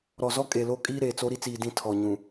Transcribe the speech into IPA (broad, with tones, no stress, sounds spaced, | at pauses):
ɾ ɔ˨ z ɔ˦ kʼ e˨ l o˦ kʼ iː˦ ɾ eː˨ t͡s o˦ ɾ i˦ t͡s iː˨ d ĩ˦˨ tʰ ɔ˨ ɲ ũ˨